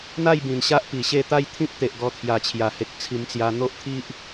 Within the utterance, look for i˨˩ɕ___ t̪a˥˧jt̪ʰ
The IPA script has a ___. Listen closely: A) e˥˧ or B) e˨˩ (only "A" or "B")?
A